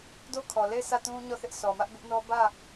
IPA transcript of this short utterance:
d o˦ kʰ ɔ˨ l e˦˨ ɪ̯ sʰ ä˦˨ t ũ˦ ɲ ɔ˦˨ θ ɪ˦ ʔ sʰ ɔ˨ m ä˦ ʔ b ɪ˦ ʔ n ɔ˦ b ä˦˨

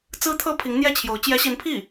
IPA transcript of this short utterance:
t͡s ɹ̩˥ t̪ʰ ɤ˥ pʰ i˧˥ ŋ n̪ j ɛ˥˩ t͡ɕʰ j o˧˥ ʊ̯ t͡ɕ j ɛ˧˥ ɕ i˧˥ n pʰ i˥˩

